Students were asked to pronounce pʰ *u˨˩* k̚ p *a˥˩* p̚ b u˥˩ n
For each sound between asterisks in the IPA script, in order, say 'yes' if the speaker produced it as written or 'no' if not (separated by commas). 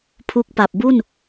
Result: no, no